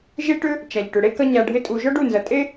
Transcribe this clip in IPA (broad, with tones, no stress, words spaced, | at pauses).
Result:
ʒe˦ʈʏ˦ | t͡ʃa˨ʎ ʈʏ˨ɽe˦ kɐ˦ɲa˧ ɖʱɪ˦tʼu˧ ʒɔ˦ɖu˦˨nzɐ˨tʼe˦